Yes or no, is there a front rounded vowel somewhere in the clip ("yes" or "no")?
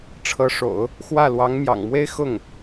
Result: no